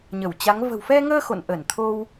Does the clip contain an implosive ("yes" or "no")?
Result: no